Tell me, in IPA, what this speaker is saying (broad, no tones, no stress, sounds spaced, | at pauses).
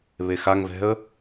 β e x a ŋ v ɛ̤ ə̯